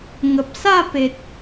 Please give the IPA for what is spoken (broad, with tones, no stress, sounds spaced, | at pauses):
ŋ ə˨ p̚ s a˥˧ p e˨ t̚